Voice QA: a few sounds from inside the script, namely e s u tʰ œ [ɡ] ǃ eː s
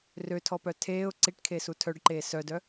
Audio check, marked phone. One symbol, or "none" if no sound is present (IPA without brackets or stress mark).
ɖ